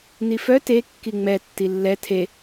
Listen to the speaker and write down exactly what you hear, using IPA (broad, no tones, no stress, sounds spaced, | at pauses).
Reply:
n i f œ t e kː i ŋ͡m ɛ tː i lː ɛ tʰ e